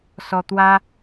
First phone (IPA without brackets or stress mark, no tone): s